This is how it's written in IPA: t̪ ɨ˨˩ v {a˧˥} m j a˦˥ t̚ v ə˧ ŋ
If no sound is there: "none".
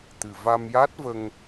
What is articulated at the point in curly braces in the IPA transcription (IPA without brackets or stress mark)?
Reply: a˧